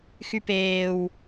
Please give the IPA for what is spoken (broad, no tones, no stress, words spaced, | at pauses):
xypeːw